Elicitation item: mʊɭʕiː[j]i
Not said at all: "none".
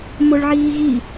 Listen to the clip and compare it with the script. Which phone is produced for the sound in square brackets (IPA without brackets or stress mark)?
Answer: ɣ